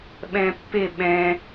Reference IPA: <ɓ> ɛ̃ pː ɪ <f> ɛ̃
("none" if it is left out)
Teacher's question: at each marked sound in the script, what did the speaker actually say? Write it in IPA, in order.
ɓ, ɓ

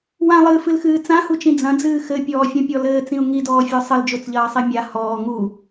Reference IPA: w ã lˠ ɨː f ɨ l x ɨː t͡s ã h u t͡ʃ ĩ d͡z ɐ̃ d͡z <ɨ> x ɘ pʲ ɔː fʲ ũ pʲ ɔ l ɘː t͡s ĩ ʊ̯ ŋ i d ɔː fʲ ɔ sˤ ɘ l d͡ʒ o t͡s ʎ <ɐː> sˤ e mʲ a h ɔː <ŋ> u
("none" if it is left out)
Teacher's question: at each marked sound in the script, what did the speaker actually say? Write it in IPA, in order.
ɨː, ɐː, ŋ

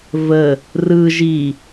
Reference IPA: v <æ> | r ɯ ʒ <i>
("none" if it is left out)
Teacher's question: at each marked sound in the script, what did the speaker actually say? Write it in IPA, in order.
ə, i

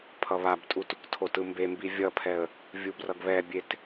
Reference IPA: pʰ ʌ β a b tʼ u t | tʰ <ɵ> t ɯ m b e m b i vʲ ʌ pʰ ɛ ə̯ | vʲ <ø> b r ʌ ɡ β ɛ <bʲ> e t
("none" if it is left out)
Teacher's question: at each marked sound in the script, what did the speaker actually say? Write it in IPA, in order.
o, u, bʲ

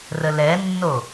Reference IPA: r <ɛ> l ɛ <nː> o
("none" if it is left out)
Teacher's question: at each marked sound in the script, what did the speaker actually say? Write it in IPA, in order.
ə, nː

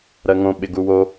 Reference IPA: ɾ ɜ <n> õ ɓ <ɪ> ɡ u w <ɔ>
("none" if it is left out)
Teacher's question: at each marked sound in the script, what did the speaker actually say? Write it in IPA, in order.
ŋ, ɪ, o

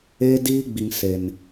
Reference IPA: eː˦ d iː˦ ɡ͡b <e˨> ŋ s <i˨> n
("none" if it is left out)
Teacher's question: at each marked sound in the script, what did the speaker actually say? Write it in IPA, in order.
i˨, e˨

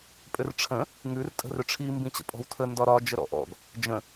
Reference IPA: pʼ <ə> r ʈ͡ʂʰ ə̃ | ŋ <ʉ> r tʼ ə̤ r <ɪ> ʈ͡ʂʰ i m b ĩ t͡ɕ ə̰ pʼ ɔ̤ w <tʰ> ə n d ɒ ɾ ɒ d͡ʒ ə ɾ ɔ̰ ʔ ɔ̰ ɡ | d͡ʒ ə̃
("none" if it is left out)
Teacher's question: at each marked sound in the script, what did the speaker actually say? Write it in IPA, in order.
ʏ, ʉ, ʏ, tʰ

